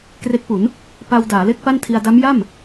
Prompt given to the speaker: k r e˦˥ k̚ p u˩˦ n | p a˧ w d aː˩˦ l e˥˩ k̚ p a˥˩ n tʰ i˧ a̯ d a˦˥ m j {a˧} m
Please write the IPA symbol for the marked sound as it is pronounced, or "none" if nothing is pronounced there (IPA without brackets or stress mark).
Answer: a˥˩